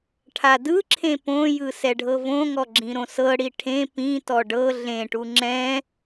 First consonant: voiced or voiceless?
voiceless